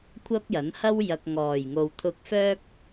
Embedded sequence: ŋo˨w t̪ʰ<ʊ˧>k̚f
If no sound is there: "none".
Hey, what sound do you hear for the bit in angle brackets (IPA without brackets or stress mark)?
ʊ˧